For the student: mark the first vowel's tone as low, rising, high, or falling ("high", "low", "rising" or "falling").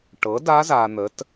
rising